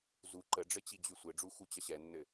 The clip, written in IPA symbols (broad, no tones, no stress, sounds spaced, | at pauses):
z u ǃ ə ɖ͡ʐ ɘ t͡ɕ i d͡ʑ y sʷ ɘ ɖ͡ʐ u x u t͡ɕ ʌ ɕ ɛ nː ɘ